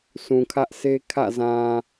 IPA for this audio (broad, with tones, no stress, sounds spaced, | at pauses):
s ũ˨ kʰ ä˦ ʔ sʰ e˦ kʰ ä̰˦˨ z ã˨